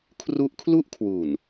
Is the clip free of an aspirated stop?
no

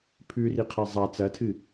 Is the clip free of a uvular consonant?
no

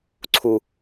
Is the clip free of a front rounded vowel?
yes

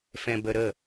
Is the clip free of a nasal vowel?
no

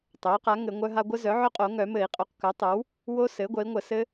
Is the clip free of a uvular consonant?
no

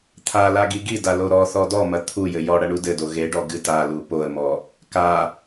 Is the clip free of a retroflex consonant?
no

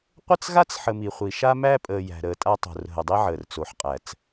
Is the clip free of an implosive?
yes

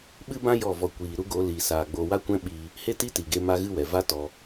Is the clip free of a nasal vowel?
no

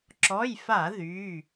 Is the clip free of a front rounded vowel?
no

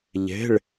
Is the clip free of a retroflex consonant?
no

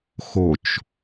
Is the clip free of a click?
yes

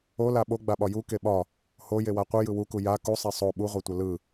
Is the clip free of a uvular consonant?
no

